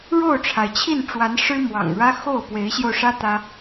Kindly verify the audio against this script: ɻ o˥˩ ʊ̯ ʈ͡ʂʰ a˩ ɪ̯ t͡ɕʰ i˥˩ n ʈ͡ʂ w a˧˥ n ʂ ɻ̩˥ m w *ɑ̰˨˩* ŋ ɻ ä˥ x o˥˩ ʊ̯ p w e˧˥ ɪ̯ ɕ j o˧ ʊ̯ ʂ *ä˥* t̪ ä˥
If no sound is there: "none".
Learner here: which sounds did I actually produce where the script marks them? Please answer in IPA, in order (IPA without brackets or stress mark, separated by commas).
ɑ̰˨˩, ä˥